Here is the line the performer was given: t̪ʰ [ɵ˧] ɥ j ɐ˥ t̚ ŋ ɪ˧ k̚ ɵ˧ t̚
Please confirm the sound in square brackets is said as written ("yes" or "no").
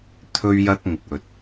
no